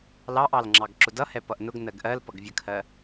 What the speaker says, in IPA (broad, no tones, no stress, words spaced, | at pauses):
lɑʔɑlŋ͡ǁɑɡ ǁʊdʌ hɛpʌʔnʊɡ nɜɡʔɜl pʌɡvʲəkʰɜ